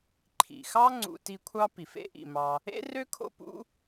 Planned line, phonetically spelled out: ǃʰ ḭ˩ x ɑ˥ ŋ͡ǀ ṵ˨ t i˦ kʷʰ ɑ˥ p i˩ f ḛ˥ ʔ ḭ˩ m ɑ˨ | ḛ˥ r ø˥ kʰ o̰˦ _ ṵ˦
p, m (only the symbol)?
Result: p